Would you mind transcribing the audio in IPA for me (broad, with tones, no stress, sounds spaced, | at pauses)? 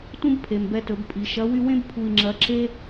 t ũ˥ b pʰ e˩ m b ɛ˧ t ɵ˩˧ b pʼ i˩˧ ʃ ɐ˧˥ w y˥ w ẽ˥ b pʰ u˧ i̯ ŋ͡ǁ ɐ˧˥ ǁ e˥